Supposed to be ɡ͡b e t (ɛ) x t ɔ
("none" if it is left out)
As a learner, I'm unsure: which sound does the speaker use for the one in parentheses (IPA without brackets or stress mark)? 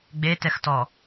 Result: ɛ